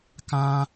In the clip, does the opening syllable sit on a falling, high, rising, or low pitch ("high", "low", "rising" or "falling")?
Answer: high